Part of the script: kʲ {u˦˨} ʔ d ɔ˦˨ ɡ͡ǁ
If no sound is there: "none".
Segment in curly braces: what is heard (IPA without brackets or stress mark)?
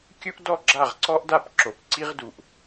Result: u˦